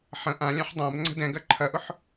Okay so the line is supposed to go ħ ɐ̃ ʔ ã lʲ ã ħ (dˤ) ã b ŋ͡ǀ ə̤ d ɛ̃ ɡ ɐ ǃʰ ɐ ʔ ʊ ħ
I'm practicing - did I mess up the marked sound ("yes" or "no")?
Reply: no